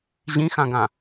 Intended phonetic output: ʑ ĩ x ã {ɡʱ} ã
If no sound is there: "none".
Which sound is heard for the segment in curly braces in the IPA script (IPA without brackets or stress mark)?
ɡ